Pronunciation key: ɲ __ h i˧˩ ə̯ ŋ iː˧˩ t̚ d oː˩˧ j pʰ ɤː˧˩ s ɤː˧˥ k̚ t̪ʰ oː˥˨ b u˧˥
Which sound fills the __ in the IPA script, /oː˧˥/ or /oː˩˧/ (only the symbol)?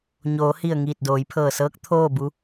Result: oː˩˧